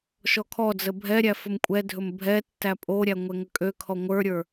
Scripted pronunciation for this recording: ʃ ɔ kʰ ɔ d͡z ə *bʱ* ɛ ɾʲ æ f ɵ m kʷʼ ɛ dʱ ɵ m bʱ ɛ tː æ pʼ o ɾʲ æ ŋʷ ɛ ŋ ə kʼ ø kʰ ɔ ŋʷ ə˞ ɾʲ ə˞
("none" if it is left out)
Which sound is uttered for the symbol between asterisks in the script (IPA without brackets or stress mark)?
bʱ